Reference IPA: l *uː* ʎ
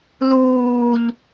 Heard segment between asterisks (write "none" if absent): uː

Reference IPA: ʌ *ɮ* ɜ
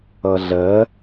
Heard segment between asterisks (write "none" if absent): ɮ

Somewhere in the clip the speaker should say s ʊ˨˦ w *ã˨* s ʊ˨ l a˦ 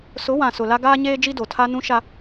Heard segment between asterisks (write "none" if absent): ã˨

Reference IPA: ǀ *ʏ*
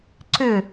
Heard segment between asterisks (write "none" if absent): ʏ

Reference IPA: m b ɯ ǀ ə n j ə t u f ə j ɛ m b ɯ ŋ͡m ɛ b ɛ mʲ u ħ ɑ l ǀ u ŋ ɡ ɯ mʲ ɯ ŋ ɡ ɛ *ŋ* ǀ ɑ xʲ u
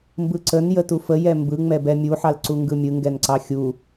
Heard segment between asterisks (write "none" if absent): n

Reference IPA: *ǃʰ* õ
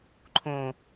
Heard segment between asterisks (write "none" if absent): ǃʰ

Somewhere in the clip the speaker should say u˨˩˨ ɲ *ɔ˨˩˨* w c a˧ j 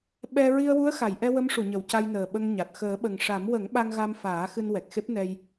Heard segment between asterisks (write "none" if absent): ə˨˩˨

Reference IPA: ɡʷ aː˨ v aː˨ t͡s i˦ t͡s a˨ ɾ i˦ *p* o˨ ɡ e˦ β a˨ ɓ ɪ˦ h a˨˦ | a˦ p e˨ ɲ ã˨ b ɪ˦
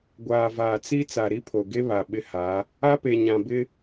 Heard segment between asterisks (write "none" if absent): pʰ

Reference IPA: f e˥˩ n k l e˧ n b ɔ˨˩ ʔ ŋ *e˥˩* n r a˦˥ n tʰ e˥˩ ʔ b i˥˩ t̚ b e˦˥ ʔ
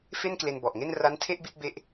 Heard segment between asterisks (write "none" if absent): e˥˩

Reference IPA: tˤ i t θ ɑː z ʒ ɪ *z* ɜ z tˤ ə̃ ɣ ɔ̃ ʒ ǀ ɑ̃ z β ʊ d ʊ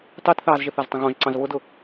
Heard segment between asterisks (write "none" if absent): θ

